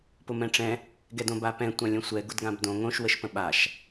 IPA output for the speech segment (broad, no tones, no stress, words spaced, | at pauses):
pʊmɛ̃ʈ͡ʂɛ̃ | ɡɛdõbapɛ̃ tʷãlʲə̃sʷɛ ɡʊdɡãbdõ ŋõʃ wəʃpə̃ɓaʃ